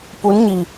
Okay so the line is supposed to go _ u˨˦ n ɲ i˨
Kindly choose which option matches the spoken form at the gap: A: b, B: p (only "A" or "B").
B